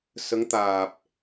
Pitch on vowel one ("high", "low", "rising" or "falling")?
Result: rising